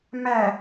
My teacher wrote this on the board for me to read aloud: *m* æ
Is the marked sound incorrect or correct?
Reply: correct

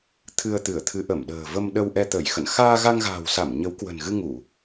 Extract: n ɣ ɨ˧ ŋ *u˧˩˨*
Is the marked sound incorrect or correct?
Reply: correct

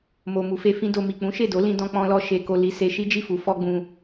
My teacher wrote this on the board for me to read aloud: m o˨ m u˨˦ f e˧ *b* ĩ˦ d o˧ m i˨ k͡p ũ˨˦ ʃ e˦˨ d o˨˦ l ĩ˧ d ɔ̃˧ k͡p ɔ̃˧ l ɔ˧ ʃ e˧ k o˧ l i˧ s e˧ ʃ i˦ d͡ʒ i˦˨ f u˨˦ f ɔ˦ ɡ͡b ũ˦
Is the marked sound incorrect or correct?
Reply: incorrect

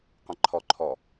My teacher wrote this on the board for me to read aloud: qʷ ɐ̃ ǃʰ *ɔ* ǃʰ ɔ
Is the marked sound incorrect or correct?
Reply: correct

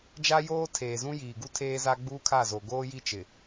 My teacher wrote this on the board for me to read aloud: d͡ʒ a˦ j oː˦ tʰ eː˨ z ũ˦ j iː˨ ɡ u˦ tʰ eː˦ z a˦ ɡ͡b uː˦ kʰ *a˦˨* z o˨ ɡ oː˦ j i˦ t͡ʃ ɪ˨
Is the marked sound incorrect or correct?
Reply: correct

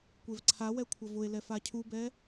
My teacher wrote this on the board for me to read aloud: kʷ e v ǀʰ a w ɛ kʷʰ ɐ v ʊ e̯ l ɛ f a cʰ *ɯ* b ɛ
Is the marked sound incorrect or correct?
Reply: incorrect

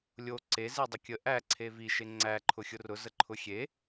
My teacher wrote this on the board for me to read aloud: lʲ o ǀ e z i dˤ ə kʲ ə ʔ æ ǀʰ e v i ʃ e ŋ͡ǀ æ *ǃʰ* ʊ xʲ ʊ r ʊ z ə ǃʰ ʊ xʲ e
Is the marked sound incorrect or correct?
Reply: correct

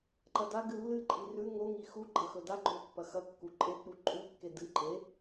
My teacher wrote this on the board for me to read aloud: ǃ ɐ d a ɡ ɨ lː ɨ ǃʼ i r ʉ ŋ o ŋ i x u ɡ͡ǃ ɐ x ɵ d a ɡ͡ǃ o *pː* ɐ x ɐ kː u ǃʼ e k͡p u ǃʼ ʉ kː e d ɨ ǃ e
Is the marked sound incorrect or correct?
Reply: correct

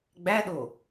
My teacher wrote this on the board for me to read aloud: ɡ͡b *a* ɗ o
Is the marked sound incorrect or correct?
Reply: incorrect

